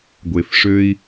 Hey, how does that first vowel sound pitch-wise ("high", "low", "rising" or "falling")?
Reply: low